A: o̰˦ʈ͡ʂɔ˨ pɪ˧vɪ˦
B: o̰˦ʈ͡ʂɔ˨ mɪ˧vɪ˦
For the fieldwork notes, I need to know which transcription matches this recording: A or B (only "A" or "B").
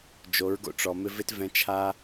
B